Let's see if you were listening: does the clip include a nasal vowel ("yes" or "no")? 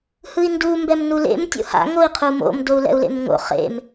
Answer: no